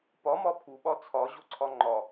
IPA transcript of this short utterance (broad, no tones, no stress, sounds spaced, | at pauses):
p ɒ m ɒ pʰ u ɓ ɒ t͡sʰ ɒ ʑ o ǀʰ ɒ ŋ͡ǃ ɒ